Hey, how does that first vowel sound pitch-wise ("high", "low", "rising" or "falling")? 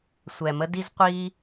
low